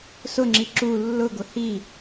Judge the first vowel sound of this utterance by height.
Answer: high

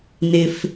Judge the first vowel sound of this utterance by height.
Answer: high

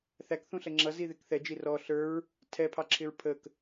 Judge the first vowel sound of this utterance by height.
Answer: low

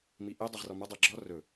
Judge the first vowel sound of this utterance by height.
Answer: high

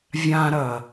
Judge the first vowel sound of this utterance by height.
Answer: low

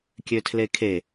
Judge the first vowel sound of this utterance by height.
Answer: mid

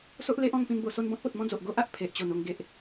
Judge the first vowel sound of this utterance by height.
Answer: mid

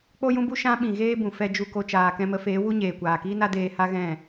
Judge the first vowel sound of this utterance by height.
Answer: mid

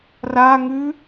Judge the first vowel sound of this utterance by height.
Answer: low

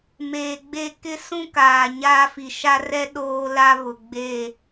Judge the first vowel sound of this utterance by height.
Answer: mid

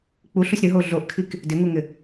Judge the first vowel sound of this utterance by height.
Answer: high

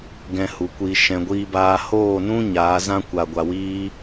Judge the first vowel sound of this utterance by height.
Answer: mid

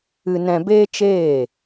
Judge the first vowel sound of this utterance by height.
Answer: high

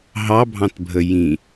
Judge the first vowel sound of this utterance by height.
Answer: low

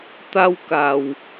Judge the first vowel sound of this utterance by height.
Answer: low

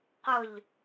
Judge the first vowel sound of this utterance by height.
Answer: high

